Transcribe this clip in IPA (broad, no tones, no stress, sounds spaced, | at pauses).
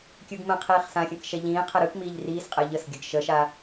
kʲ ɯ ɡ m ə̃ qʰ iː χ s ã xʲ ə̃ k ʃ ɛ ʎ ĩː qʰ ɛ ɾ ɯ k m iː ʎ r iː s qʼ ɛ ʎ ə s ɡʲ ə ɡ ʃ ə ʃ a